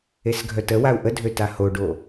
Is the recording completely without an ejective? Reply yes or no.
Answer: yes